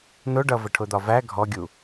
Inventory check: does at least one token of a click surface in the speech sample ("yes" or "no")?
no